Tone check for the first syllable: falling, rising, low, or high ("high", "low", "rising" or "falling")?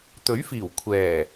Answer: rising